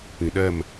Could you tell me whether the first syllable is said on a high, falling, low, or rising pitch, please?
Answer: low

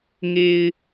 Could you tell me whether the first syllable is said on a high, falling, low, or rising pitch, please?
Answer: low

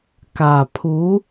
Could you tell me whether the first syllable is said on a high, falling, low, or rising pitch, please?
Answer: low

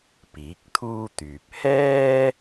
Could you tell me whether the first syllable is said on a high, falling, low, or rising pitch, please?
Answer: rising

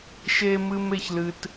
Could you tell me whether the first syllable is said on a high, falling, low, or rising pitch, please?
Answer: high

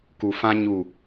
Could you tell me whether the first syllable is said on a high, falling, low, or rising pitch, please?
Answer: low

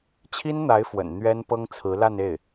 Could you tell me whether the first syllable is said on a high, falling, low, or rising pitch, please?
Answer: high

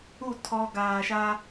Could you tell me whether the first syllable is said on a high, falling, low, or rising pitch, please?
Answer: falling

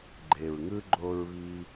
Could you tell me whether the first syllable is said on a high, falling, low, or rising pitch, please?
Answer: low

